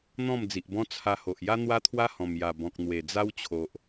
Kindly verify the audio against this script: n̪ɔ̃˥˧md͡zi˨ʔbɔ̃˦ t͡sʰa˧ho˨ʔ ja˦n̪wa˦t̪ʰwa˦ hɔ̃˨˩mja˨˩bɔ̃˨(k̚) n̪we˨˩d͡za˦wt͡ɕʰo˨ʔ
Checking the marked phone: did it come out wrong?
no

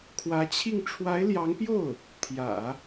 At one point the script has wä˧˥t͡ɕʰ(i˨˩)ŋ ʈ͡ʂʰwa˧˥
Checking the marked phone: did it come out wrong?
yes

